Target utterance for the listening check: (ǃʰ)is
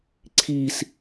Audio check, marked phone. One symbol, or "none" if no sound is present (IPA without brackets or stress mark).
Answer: ǀʰ